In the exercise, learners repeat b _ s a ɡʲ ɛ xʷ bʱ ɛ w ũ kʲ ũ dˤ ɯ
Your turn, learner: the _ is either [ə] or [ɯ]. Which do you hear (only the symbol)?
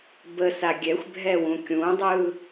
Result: ə